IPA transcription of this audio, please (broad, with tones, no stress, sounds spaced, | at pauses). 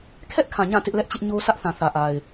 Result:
kʰ ɛ˦ ʔ kʰ ã˨ ɲ ã˦˨ t ɪ˦ ʔ l ɛ˦ ʔ t͡ɕ ɪ˦ ʔ ɲ o˦ sʰ ä˦ ʔ θ ã˨ θ ä˨ ʔ a˨ ɪ̯